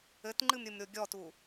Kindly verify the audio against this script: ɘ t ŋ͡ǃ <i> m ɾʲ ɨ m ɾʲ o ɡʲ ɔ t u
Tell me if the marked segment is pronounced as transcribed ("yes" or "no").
no